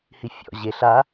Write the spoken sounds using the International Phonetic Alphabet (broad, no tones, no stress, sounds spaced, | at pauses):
h i fʲ ɔ̰ ʑ e ɬ a